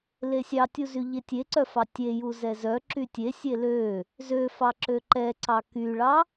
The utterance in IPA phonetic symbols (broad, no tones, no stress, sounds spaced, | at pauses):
l e sʲ ɑ tʲ u z y ʎ e tʲ e ǀ œ f ɑ tʲ e j u z ɛ z œ ǁ y tʲ e sʲ e l ø | z ø f ɑ ǁ ø ǃ ɛ ǀ ɑ k y ɭ ɑ